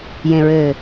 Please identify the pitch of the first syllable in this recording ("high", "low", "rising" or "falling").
low